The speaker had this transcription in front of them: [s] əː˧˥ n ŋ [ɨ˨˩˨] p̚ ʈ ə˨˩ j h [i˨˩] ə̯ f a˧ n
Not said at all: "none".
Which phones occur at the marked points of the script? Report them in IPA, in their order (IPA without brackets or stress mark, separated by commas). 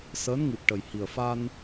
s, ɨ˨˩, i˨˩